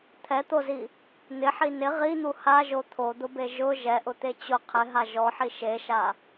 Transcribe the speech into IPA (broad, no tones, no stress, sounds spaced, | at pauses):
t̪ʰ ɛ t̪ o z i | n̪ ɪ ħ i n ɪ ʁ i n̪ u h a ʒ o t̪ʰ o d̪ ʊ b e ʒ ʊ ʒ ɛ ʔ ʊ t̪ e t͡ɕ ʊ qʰ ɪ ɦ a ʒ ɔ ħ i ʃ e ʃ a